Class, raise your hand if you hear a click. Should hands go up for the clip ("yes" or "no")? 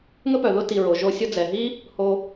no